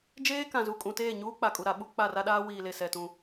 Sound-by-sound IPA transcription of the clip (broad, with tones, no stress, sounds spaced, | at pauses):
d͡ʒ eː˦ k ã˨ z u˨ kʼ ũ˨ t eː˦˨ ɲ uː˦ k͡p a˨ kʼ u˨ ɾ a˨˦ ɓ u˨˦ k͡p a˦˨ r a˦ ɗ aː˦ w iː˨ l e˨ s ɛ˨ t ũ˨